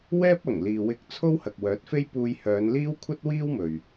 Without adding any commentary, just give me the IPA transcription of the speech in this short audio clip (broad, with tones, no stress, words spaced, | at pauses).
wɛː˥p̚ɐ˨˩ŋ liː˨wɪ˧k̚ t͡sʰo˥whɐ˨k̚wœː˨˥t̚fe˥j puː˧jhœː˨˧n liː˥wkʷʰɐ˥t̚wiː˥wmɵ˨ɥ